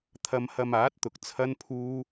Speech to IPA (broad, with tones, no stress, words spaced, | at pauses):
t̪ʰɐ˧mhɐ˧maː˨˥t̚t̪ʊ˨k̚ t͡sʰɐ˥npʰuː˥